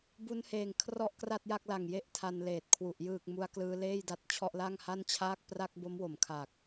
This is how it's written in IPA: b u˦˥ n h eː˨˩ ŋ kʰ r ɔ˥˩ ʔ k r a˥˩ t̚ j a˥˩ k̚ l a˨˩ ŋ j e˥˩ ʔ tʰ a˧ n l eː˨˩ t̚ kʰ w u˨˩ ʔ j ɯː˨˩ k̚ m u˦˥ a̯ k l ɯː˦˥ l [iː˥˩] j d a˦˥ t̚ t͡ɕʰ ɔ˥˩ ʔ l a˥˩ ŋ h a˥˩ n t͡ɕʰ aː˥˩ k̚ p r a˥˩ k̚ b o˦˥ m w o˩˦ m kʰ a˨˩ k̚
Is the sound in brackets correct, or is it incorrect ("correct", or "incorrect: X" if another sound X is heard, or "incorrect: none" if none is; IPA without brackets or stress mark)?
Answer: incorrect: eː˥˩